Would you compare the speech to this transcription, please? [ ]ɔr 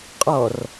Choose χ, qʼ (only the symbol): qʼ